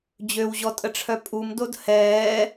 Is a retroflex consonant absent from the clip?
no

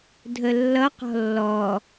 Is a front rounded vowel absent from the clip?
yes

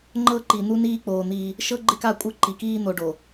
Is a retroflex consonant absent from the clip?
no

